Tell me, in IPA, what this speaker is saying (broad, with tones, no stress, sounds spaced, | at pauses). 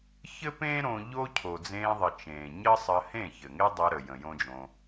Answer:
ç ɘ˦ p ẽː˦ ɾ õ˧ ʎ o˦ cʰ o˨ d͡z ẽː˧ ðˤ ə˨ t͡ʃ ẽː˨ ɲ ə˦ sˤ ə˧ h ẽ˦˨ ç ɘ˨ ŋ e˦ dˤ əː˧ ɾ ə˨ j ə̃˨ j õ˦ d͡ʒ õ˧